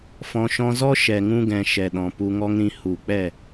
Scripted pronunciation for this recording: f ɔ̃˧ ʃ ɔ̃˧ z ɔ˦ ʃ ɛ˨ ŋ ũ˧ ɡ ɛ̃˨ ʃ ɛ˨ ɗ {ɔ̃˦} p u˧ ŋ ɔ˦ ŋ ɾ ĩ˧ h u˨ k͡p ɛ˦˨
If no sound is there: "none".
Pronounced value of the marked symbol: ɔ̃˨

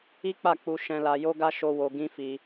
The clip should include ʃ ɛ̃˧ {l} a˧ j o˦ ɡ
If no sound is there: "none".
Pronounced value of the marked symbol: l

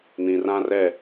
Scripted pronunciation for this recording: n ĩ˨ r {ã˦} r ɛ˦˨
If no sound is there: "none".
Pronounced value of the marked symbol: ã˦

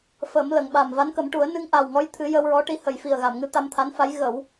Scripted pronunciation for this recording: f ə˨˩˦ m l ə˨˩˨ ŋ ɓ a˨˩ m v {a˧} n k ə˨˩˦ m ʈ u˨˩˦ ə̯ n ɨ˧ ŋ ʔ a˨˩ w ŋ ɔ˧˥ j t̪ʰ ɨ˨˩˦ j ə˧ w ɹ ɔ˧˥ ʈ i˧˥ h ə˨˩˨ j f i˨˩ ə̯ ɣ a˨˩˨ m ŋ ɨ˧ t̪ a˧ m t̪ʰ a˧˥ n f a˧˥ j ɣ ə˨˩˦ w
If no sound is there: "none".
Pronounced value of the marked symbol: a˧˥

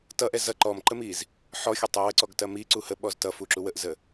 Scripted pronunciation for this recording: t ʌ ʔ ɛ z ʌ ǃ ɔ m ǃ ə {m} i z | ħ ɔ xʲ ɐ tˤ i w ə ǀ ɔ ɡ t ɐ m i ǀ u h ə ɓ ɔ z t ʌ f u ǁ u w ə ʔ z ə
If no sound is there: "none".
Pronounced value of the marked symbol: m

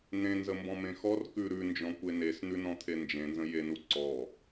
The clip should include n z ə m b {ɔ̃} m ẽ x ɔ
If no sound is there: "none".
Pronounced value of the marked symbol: ɔ̃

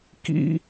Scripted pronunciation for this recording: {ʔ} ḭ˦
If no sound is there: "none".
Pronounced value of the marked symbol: k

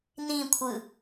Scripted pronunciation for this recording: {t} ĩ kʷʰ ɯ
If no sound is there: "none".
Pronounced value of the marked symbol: n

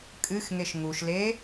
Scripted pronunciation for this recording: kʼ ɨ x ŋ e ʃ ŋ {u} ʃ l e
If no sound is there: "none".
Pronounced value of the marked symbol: u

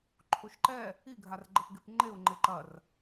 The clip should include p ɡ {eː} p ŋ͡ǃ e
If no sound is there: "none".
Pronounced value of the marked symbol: e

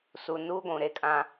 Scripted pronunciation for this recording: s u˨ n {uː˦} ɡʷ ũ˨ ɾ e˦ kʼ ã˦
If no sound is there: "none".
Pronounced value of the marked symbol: uː˦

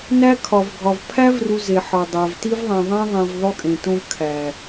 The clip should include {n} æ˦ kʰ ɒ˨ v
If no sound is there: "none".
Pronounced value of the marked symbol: n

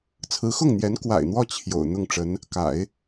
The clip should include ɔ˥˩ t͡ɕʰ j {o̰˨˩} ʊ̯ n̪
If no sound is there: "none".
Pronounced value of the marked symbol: o̰˨˩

